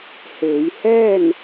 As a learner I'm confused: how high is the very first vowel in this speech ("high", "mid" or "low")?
mid